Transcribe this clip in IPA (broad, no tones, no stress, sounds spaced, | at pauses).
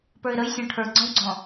p ə˞ ɪ̯ ɾ ə j sʲ ɔ̃ ʈʰ ə˞ ɡ͡ǀ ɔ̃ w ɡ͡ǀ ɔ̃